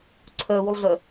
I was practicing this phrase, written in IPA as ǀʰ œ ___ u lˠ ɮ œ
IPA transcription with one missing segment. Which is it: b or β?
β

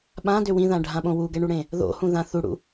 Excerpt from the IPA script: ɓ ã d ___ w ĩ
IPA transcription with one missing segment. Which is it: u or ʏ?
ʏ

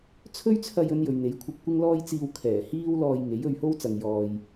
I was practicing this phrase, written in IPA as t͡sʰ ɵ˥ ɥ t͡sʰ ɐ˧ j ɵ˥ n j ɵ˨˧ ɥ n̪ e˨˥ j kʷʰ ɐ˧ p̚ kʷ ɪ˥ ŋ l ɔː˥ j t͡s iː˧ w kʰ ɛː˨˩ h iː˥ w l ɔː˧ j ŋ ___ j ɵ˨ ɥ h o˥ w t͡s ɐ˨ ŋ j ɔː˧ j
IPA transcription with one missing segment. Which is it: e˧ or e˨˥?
e˨˥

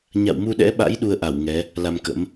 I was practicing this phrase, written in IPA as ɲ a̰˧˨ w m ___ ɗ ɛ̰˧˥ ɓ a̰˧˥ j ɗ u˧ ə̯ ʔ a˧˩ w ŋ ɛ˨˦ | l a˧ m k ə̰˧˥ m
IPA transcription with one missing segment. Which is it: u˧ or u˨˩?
u˧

